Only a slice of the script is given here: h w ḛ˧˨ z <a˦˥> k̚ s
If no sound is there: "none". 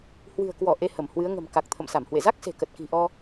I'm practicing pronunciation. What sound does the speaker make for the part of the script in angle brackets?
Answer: a˦˥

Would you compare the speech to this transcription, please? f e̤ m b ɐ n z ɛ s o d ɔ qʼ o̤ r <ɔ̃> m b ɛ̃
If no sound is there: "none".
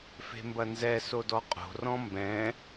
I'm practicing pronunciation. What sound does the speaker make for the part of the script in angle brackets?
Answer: ɔ̃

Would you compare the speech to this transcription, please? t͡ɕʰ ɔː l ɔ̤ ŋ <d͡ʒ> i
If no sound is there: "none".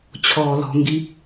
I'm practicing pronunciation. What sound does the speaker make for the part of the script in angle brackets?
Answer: ɡ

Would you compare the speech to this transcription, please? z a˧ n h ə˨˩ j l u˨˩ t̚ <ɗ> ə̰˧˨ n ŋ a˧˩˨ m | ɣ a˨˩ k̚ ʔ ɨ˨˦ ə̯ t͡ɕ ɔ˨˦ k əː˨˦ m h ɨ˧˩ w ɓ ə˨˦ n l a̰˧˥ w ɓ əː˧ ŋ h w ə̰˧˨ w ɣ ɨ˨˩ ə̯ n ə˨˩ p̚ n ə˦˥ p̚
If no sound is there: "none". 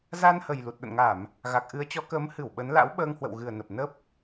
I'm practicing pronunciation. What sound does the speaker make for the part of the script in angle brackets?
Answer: ɗ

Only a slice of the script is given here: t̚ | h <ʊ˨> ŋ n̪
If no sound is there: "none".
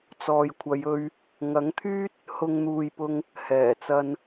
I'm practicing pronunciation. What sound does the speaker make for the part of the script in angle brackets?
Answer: ʊ˨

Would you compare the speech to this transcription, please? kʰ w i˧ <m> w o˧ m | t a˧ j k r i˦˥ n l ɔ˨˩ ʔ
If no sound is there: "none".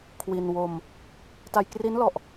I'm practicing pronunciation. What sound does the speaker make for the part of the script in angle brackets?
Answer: n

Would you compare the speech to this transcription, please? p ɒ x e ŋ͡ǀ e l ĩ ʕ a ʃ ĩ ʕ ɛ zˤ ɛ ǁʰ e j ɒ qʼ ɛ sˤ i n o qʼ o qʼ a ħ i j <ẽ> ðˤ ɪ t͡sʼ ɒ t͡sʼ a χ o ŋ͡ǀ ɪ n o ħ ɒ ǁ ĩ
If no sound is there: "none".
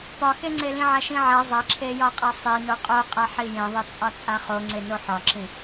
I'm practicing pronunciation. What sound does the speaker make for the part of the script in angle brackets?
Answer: ẽ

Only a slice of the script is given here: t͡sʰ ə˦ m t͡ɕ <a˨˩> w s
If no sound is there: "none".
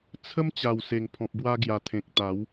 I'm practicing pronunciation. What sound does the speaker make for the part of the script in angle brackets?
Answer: a˨˩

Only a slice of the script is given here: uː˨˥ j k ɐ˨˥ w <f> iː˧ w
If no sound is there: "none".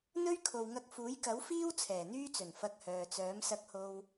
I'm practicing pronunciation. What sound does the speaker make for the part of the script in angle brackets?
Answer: f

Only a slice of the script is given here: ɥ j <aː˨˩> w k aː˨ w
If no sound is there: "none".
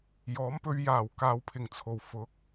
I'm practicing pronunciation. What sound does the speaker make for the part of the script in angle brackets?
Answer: aː˨˩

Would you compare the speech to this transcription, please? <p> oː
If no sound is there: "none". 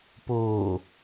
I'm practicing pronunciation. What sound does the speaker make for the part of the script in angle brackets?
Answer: p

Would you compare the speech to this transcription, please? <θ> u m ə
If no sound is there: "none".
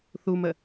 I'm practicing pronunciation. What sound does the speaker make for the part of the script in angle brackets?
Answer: θ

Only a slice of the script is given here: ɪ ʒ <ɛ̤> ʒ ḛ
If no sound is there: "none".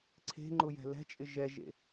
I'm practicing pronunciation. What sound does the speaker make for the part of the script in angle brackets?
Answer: ɛ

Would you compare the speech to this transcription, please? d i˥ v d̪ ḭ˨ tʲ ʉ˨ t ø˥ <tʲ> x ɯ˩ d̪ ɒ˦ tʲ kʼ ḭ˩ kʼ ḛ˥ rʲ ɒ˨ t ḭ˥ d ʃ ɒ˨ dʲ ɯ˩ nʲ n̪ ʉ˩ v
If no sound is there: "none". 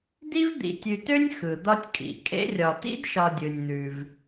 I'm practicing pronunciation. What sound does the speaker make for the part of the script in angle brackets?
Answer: nʲ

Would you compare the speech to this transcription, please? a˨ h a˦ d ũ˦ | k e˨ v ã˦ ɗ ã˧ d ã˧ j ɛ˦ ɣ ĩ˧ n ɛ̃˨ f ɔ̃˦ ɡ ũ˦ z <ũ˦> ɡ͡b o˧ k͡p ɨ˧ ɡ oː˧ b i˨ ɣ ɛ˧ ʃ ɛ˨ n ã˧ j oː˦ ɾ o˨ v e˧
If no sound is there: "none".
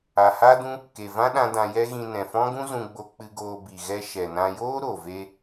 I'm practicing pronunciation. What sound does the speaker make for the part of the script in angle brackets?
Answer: ũ˧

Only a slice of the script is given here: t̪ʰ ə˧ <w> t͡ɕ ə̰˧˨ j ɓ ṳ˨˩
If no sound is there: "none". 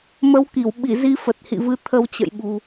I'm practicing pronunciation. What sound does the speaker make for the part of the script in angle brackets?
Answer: w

